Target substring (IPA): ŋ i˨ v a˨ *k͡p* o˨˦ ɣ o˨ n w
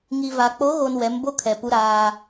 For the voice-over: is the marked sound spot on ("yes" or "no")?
yes